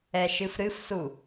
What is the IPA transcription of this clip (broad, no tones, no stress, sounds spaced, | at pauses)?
ɛ ʃ ɨ f ɾ ɨ f s u